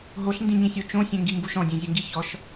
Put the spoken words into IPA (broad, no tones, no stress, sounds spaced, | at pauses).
ɦ o ɬ n d ĩ ɲ ĩ sʲ o t͡ʃ õ sʲ ɛ̃ ŋ ɡ i ŋ ɡ u ʃ ɔ̃ dʲ ẽ zʲ ɘ ŋ ɡ i ç ɔ ʃ